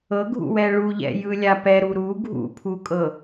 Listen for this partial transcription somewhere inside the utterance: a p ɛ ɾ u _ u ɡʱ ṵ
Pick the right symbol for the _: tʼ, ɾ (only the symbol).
ɾ